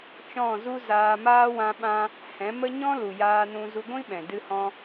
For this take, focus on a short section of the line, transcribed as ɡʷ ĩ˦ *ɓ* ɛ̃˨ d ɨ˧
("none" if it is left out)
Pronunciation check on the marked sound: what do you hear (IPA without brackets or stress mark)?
ɓ